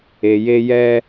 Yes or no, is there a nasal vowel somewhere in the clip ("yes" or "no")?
no